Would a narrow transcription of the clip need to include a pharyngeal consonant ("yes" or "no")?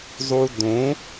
no